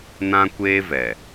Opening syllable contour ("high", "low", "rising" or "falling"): high